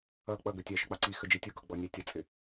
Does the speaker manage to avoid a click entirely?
no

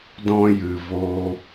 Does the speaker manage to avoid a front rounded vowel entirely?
yes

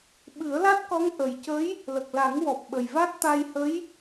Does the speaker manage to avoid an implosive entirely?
no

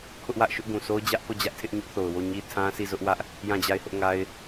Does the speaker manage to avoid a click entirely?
yes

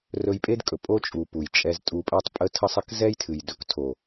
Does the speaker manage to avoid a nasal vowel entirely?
yes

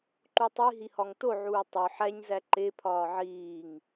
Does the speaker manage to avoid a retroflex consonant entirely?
yes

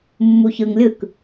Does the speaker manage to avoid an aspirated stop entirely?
yes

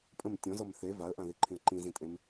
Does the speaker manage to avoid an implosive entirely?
yes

